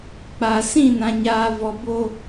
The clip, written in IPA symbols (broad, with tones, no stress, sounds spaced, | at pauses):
k͡p a˨ s ĩ˦˨ n ã˨ ɲ aː˨ v ɔ˨ b o˦